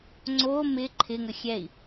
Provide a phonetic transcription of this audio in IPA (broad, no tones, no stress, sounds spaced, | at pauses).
ŋ͡ǀ o m ɪ ǃʰ ɪ ŋ ə xʲ ɛ i̯